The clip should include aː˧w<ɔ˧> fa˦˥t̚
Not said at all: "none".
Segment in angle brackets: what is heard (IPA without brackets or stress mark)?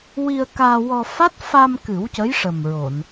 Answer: ɔ˧